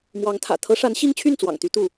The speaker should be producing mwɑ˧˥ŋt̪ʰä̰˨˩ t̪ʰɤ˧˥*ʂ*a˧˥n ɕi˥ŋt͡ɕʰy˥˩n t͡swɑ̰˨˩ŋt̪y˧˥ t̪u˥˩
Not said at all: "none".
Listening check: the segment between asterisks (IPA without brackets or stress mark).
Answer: ʂ